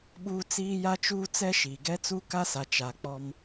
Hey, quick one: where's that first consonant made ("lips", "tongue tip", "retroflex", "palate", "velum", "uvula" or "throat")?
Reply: lips